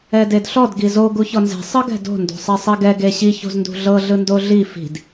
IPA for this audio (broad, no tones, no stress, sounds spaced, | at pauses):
ɛ d e d ɬ ɔ d ɡ i z o ɡ u ç ɔ n z e̤ sˤ ɯ ɡ ɛ̤ d o̤ n d o̤ sˤ ɛ sˤ i ɡ ɛ ɡ e ɕ i ç o̤ z n d ṳ ɮ ɤ ɮ ɯ n d o ɮ i f i̤ d